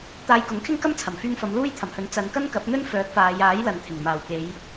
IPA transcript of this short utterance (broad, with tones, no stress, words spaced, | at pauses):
t̪aː˧jkʊ˨˥ŋkʰɪ˥ŋ kɐ˥mt͡sʰɐ˨˩mfyː˧ŋfɐ˨˧m luː˥jt̪ʰɐ˨˩mhɵ˨˥n t͡sɐ˨˧n kɐ˥nkɐ˨˥p̚n̪ɵ˥n fœː˨˥k̚faː˨˧jaː˨˥jlɐ˨n t̪ʰɪ˨˩ŋmaː˨˩wke˨˧j